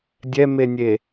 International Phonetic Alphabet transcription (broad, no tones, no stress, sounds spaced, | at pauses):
dʲ ɛ m e nʲ e